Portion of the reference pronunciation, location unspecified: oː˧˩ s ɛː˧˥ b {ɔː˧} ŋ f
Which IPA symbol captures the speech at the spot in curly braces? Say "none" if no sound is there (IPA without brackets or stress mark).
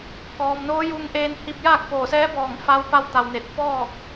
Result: ɔː˧˩